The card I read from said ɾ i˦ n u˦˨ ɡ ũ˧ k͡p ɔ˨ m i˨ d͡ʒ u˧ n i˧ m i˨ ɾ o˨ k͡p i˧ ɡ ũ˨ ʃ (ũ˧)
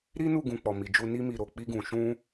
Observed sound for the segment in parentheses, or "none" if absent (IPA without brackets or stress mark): ũ˧